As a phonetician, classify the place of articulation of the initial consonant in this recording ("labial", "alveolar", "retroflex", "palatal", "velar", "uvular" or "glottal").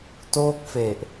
alveolar